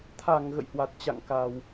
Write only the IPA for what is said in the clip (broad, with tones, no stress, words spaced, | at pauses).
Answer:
t̪ʰa˧˩ŋ ɣə̰˧˨jhwa˨˩t̚t͡ɕa̰˧˨ŋ ka˨˩w